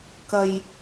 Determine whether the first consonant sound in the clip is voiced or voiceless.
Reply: voiceless